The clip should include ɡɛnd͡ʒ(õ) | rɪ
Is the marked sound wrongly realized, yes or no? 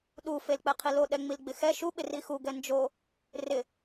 yes